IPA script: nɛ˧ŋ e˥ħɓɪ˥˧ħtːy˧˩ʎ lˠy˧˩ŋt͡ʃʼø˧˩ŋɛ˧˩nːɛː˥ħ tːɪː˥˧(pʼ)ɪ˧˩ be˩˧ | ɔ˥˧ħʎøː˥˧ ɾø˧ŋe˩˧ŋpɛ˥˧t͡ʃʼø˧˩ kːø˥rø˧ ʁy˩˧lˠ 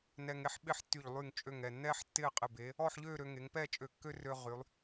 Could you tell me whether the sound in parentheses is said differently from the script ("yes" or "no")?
yes